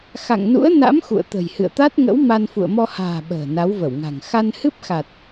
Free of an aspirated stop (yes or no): yes